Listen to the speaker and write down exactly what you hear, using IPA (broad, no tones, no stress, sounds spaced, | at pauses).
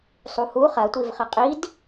sˤ u h u χ ɐ tʷ i v χ ɐ qʼ i d